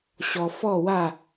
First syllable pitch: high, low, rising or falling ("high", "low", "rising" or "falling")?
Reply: low